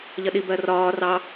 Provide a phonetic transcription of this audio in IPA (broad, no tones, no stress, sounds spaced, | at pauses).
ʎ ʌ ɗ i b ɜ r ɒː r ɑ